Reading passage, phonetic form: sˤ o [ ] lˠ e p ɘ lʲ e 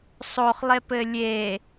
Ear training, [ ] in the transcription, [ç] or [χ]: χ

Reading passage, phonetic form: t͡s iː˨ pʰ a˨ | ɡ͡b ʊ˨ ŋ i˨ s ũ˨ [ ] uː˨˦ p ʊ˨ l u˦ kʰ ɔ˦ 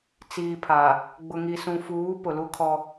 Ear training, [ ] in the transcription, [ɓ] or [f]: f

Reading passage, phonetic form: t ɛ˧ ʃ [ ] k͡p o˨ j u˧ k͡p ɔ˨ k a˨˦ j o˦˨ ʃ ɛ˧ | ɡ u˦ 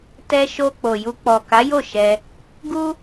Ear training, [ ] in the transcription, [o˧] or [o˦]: o˧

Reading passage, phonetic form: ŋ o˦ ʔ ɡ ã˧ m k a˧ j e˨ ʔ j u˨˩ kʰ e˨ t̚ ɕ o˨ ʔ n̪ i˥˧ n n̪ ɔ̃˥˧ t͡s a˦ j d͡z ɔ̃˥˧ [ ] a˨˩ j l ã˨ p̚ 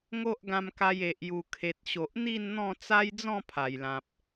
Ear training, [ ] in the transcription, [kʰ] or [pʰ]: pʰ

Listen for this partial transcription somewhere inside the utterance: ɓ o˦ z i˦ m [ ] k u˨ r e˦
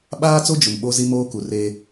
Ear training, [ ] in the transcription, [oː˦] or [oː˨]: oː˦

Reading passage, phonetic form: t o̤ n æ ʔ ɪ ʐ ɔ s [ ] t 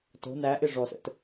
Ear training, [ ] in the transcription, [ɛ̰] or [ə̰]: ə̰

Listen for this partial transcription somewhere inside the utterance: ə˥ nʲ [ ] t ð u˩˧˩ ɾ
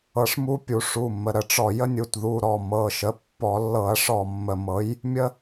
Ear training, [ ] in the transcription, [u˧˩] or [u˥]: u˧˩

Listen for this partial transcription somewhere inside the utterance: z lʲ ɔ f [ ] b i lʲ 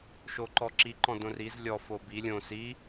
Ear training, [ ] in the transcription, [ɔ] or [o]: o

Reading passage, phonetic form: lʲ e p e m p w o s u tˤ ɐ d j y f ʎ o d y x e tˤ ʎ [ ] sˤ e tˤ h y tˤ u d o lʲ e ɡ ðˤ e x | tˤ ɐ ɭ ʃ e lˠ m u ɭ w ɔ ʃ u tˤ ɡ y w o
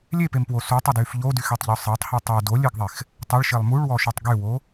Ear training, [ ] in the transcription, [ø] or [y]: ø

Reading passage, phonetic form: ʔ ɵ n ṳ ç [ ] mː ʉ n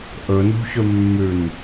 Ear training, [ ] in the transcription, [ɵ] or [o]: ɵ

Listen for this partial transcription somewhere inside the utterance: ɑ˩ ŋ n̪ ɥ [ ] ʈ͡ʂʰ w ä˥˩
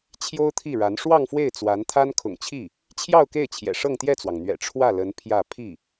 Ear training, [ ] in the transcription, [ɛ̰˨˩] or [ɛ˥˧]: ɛ̰˨˩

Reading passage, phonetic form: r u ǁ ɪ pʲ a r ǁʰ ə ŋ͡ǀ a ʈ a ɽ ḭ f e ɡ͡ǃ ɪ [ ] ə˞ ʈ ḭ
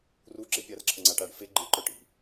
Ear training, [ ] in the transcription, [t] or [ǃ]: ǃ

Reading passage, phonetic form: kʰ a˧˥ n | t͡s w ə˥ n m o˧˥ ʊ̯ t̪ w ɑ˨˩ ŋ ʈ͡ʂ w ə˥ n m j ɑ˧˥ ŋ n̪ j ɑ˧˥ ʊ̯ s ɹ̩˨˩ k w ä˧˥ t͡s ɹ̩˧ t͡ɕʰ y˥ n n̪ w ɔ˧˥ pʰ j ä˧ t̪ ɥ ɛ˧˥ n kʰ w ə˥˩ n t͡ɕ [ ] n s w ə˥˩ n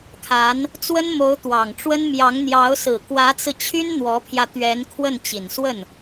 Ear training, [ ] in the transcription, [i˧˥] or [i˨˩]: i˨˩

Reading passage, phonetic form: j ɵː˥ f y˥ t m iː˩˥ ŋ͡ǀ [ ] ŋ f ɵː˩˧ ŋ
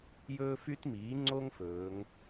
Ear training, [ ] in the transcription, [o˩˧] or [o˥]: o˥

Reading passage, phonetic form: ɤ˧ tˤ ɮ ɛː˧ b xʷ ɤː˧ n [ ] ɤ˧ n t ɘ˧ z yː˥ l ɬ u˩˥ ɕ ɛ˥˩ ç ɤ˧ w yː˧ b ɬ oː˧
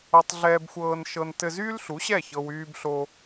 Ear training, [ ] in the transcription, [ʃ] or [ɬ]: ʃ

